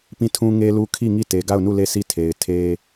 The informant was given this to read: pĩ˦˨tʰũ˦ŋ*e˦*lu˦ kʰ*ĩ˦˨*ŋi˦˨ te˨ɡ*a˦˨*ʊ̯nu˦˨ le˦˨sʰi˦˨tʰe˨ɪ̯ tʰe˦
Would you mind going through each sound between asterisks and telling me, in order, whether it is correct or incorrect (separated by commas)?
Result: correct, incorrect, correct